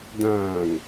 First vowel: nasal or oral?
nasal